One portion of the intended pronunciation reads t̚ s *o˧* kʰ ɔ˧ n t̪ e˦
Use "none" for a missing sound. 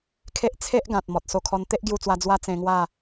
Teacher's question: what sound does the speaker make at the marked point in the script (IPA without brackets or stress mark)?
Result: o˧